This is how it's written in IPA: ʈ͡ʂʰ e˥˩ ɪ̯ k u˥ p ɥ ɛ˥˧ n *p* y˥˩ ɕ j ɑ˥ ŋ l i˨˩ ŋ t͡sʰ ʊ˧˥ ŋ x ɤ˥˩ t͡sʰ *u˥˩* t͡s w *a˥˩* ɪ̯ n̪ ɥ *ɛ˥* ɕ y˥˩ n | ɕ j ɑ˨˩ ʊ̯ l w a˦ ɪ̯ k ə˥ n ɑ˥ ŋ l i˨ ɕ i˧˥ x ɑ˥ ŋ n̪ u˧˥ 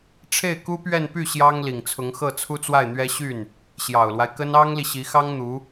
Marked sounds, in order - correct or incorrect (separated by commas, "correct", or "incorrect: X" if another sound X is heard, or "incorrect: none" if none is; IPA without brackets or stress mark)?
correct, incorrect: u˥, correct, correct